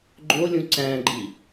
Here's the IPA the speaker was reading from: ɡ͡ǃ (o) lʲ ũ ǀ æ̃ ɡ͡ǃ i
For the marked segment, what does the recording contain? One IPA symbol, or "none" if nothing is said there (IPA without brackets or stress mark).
o